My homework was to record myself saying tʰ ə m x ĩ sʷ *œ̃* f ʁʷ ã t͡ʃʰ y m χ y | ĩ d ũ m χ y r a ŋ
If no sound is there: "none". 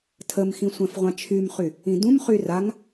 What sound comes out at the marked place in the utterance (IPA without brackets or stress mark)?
ɛ̃